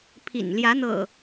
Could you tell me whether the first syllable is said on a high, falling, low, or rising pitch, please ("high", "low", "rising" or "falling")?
low